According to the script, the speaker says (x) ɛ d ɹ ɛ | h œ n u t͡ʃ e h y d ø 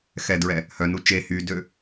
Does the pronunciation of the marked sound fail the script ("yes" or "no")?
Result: no